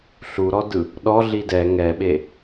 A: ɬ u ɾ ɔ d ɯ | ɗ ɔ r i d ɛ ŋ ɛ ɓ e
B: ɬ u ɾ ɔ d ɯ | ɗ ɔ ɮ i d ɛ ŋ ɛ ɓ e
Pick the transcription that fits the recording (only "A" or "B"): B